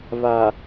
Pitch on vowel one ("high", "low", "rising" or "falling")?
low